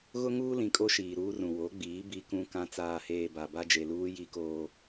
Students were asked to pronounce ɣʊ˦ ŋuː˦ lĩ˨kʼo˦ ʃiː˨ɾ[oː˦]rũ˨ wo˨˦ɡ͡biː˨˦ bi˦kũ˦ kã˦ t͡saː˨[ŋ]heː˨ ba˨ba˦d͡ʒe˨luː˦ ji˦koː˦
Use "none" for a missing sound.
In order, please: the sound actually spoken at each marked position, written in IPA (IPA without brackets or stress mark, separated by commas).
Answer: uː˦, none